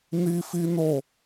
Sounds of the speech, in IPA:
ni˦fi˦no˦˨

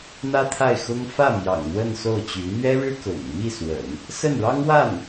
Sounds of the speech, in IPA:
n̪ä˥t̪ʰa˥˩ɪ̯xʊ˥ŋ fä˥˩mjɑ̰˨˩ŋ n̪wə˥˧nso˥˩ʊ̯t͡ɕy˧˥ n̪ɥɛ˥ɻɻ̩˥ kʊ̰˨˩ŋ mi˥˩swə̰˨˩˦n | sə˥˩nɻɑ˥ŋwa˥˩n

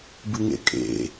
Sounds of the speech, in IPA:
bɨŋḛkʼḛ

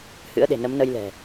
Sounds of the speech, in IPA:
hɨ̰˧˥ə̯ɗe̤˨˩ nə˨˦mnə˧jlɛ̤˨˩

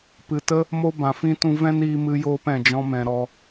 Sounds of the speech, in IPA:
pɨ˨tə˦ | mo˦bã˨fĩ˦tũ˦ vɛ̃˦niː˧mɨ˧joː˧p ɛ̃˨d͡ʒɔ̃˧mɛ̃˨ ɾɔ˧

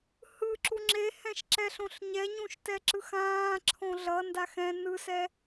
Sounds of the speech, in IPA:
hɯ ǁuŋ͡ǁe hɛ̃ʃǁɛɬõɬɲɛ ɲũʃtɛǁɯxãː ǁʰõɮʌ ndaxɛ̃ nɯsɛ

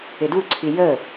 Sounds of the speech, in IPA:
ɪduǀʰi jə

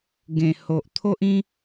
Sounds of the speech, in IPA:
ɡẽ˨˩ho˨ʔt̪ʰo˦ʔĩ˦

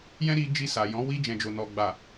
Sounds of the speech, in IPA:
jɛ̃˦ ɾi˧d͡ʒi˧ sa˨jɔ̃˨˦ wi˧d͡ʒɛ̃˨d͡ʒo˨ nɔ˨ɡ͡ba˨

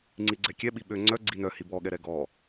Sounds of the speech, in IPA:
ŋ͡ǀiɡ͡ǀɛkʲɛ ɓiɓø ŋ͡ǀœ ɡ͡ǀinœ hibɔ ɠɛɾɛɡɔ

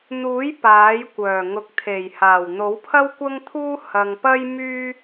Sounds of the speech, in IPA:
n̪uː˨˥j paː˨˥jkʷœː˨˩ ŋʊ˨˥k̚t̪ʰe˨˩jhaː˨˩w n̪o˨˥wpʰɐ˥wkʷɐ˥ŋt̪ʰuː˥ hɐ˧ŋ pɐ˥jmyː˥

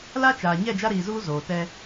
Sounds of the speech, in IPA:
la˦t͡ʃaː˨ ɲɛ˦˨d͡ʒa˦ɾiː˨zuː˦ zoː˨tɛ˦

